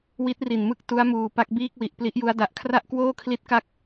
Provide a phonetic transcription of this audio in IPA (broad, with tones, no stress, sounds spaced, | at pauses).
w i˦˥ t̚ r i˨˩ n m ɯ˥˩ k̚ t u˦˥ a̯ m uː˨˩ p a˥˩ k̚ b iː˥˩ k̚ w i˨˩ ʔ p l i˦˥ ʔ j u˦˥ a̯ d a˨˩ ʔ kʰ r a˥˩ ʔ k w oː˥˩ kʰ l i˦˥ t̚ k a˥˩ k̚